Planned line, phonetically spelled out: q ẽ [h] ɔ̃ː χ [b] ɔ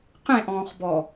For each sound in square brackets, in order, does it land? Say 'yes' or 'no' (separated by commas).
no, yes